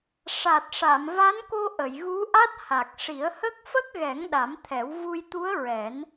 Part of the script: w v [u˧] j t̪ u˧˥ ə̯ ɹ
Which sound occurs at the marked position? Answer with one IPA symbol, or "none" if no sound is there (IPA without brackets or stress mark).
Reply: u˧